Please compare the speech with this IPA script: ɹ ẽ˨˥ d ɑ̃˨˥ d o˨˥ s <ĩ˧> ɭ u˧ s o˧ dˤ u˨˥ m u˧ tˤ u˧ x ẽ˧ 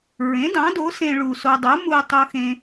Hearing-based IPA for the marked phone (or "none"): ẽ˧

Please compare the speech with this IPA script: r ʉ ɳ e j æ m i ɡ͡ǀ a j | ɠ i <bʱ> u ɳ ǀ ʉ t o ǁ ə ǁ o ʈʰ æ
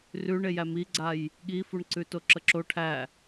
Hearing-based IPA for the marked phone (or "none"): f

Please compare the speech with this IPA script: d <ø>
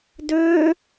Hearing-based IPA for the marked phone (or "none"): ø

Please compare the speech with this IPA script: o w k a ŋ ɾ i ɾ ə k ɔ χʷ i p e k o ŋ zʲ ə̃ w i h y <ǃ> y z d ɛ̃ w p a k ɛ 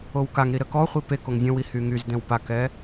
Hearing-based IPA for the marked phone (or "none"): ŋ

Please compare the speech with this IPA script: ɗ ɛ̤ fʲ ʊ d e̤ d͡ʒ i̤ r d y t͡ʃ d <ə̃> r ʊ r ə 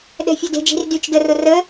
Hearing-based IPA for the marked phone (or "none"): ə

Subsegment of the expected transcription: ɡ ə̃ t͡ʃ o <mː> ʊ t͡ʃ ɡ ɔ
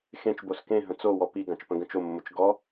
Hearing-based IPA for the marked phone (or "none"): mː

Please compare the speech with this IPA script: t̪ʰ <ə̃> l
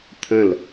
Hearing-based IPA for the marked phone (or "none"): ə̃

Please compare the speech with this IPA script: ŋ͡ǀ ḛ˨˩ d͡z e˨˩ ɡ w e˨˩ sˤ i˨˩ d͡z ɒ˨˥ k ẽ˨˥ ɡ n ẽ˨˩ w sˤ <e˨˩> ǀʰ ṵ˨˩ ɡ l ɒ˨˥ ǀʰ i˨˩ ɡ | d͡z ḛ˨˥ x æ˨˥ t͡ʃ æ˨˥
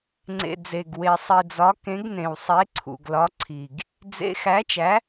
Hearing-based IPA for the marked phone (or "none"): e˨˥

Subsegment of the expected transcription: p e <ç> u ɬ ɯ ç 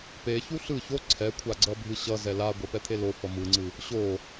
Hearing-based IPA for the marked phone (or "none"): ç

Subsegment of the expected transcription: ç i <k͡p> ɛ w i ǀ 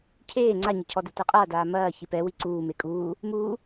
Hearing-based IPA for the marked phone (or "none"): p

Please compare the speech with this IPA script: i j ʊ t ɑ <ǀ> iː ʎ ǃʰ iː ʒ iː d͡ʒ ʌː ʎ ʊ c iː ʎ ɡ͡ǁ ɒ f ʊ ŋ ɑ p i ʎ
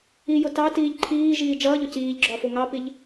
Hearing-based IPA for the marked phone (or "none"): t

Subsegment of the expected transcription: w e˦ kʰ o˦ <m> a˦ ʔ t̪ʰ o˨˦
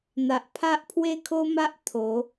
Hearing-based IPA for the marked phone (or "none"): m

